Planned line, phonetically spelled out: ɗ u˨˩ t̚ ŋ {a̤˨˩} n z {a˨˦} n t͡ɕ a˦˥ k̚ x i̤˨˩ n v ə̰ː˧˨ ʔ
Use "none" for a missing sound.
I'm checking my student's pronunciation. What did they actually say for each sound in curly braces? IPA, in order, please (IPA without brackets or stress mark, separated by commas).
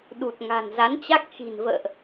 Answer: a̤˨˩, a˨˦